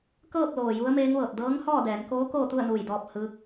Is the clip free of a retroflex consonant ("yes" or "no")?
yes